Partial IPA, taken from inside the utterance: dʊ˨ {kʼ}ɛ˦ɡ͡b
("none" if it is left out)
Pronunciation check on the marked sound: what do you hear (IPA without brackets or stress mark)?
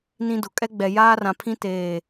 kʼ